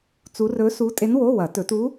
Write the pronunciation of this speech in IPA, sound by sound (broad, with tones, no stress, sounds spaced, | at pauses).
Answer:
t͡s u˧˥ r ɵ˧˥ s u˧˥ tʼ e˧˥ n w o˧˥˧ w ɐ˨˩˦ t ɵ˨˩˦ t u˧˥